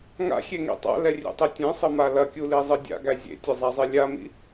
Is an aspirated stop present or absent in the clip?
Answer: absent